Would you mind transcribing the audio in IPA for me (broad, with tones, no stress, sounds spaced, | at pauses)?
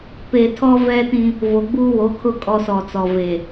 p e˨ tʰ ɔ˦ v ɛ˦ t ĩ˦ | v o˨ ɡ͡b uː˦ w o˨˦ kʰ ʊ˦ kʼ ɔ˦ s ɔ˨ t͡s ɔ˨ v e˨